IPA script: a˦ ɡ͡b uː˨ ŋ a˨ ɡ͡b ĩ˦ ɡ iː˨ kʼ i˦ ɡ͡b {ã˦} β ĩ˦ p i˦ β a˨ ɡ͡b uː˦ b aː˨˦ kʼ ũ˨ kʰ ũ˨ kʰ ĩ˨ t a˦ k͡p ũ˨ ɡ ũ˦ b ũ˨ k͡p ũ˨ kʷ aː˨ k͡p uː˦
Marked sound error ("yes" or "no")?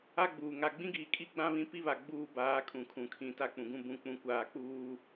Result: no